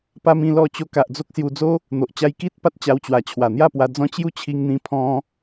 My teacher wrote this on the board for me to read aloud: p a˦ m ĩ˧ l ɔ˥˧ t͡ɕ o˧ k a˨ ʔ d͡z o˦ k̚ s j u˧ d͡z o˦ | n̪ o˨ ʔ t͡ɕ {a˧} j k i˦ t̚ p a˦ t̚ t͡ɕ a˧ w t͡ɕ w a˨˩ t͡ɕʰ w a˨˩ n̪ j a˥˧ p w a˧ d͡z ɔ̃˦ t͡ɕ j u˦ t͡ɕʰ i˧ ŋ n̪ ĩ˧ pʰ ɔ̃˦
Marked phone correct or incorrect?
correct